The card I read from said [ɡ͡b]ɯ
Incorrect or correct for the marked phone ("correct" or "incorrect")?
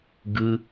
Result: incorrect